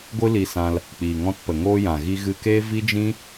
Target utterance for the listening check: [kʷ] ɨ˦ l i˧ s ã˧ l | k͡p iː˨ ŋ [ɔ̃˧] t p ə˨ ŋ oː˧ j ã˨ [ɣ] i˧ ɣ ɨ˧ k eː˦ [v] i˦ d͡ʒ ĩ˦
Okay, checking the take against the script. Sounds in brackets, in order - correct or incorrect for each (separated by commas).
incorrect, correct, correct, correct